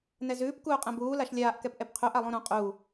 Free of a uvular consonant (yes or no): no